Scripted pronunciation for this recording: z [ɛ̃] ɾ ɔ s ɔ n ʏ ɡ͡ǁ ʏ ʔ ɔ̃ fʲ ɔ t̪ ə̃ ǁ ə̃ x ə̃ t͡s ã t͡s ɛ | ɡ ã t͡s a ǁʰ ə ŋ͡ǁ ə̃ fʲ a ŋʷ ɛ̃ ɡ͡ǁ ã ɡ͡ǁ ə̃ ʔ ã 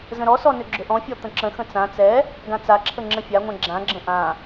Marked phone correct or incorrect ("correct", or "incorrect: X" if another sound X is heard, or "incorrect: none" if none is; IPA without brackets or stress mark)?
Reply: incorrect: ə̃